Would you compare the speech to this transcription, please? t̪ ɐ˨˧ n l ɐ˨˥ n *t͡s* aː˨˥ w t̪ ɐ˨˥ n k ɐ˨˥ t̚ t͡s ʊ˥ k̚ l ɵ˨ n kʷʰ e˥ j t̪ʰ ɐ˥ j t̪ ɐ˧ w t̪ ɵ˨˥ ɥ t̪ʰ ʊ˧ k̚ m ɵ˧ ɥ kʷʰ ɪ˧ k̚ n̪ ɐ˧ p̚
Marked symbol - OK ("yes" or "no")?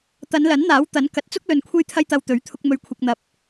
no